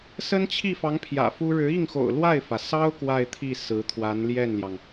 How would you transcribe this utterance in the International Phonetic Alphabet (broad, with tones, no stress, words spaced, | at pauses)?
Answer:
sə˥nt͡ɕʰi˥˩fɑ˧˥ŋ pʰjä̰˨˩fu˥ ɻɻ̩˧˥i˥˩ŋxo̰˨˩ʊ̯ lwa˥˩ɪ̯fä˩sɑ˥ʊ̯ kwa˥˧ɪ̯t̪ʰi˥˩ sɹ̩˧˥ t̪ʰwa˧˥nljɛ˥˩nljɑ˩ŋ